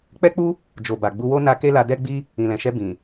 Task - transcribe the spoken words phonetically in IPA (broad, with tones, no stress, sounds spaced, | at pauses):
k͡p ɛ˦ k͡p u˦ | d͡ʒ o˨ b a˨ ɡ͡b u˧ w o˦ n a˧ k e˦ l a˧ d ɛ˦ ɡ͡b i˦ | ĩ˨ l ɛ̃˨ ʃ ɛ˧ b ĩ˨